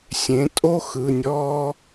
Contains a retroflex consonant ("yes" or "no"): no